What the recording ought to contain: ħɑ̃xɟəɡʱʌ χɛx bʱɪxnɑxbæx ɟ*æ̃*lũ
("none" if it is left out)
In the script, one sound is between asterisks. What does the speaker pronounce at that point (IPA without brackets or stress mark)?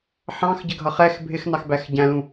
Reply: æ̃